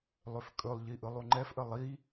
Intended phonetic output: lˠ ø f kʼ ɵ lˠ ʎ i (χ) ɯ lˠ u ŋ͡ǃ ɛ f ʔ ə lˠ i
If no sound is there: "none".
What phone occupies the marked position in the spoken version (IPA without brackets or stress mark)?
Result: ʔ